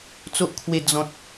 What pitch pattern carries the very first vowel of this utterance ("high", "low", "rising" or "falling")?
high